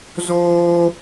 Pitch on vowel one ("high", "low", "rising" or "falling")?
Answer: high